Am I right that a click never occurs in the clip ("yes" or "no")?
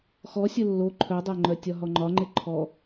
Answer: no